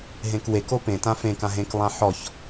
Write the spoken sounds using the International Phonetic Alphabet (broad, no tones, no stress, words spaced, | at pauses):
ɦẽkweko pẽtã fẽkã ɦẽklˠã ħɔç